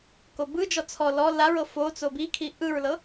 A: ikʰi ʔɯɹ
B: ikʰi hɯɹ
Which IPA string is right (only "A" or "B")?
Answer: A